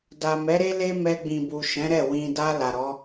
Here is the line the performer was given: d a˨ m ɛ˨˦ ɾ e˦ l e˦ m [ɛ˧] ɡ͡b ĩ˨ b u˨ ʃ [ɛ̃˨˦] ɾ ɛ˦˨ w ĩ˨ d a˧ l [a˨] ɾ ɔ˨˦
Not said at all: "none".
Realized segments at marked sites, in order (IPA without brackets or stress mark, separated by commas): ɛ˧, ɛ̃˨˦, a˨